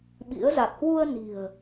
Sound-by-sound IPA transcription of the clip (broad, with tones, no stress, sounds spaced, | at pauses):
ɓ ḭ˧˥ ə̯ z a˨˩ k̚ h w u˧ ə̯ n i̤˨˩ ə̯